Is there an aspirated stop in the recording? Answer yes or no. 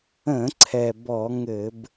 yes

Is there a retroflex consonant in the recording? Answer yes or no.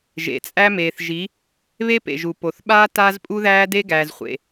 no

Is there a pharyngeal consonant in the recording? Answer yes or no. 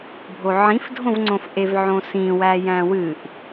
yes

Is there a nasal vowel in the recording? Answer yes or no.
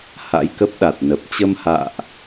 no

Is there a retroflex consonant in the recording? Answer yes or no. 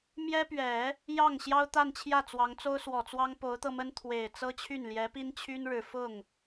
yes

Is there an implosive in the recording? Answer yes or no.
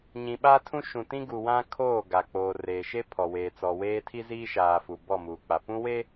yes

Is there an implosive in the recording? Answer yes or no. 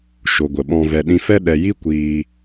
yes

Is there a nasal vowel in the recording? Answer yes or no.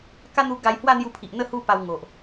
no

